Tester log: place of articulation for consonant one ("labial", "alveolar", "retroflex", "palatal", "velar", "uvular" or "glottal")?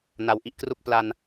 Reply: alveolar